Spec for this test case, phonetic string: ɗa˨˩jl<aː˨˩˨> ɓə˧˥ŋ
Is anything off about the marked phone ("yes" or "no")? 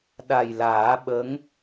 yes